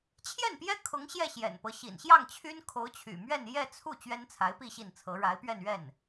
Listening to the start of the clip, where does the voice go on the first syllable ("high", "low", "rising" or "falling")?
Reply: falling